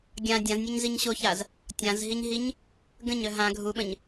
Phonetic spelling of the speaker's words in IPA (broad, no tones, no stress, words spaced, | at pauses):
ɡʲã dʲãznʲœɲziɲ ɕoçaz | tʲãzɦiɲɦiɲ | ɡə̃ɲœ ɦã ɡʱuɓə̃ɲ